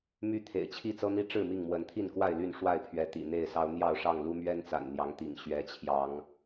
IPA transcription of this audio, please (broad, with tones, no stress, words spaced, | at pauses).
my˦t̪ʰḛ˨˩ɪ̯t͡ɕʰi˥˨ t͡sɤ˦n̪i˦ ʈ͡ʂɻ̩˥˨mi˥˨ŋmwə˨˦nt̪ʰi˥˨n kwa˥˨ɪ̯ly˥˨nʂwa˥˨ɪ̯pʰɥɛ˨˦ t̪ḭ˨˩n̪e˥˨ɪ̯sɑ˦ʊ̯ n̪jɑ˥˨ʊ̯ʂɑ˥˨ŋ lu˦mɥɛ˦nt͡sa̰˨˩n n̪jɑ˨˦ŋt̪ḭ˨˩ŋ ɕɥɛ˨˦t͡ɕʰjɑ˨˦ŋ